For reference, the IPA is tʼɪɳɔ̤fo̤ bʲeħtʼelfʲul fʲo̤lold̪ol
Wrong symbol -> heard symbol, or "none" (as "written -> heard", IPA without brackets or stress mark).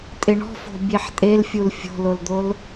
none